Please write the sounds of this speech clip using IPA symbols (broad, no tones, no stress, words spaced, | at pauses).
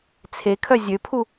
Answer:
t͡sʰekʰœ zʲøpʰu